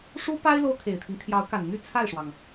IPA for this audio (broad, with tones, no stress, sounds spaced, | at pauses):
ʂ u˥ p a˥ ɪ̯ l o˥ ʊ̯ kʰ e˨˩ ɪ̯ t̪ʰ i˦ ŋ t̪ʰ j ɑ˧˥ ʊ̯ k a˨˩ n n̪ y˥˧ t͡sʰ a˥˩ ɪ̯ ʂ w ɑ˩ ŋ